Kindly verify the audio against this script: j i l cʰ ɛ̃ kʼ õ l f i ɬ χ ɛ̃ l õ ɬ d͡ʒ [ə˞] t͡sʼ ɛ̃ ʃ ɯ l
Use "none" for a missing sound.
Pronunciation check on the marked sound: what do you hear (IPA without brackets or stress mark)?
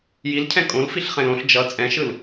ʌ